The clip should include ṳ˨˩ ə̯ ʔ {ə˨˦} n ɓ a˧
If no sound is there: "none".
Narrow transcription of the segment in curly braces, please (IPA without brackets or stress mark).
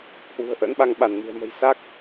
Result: ə̰˧˥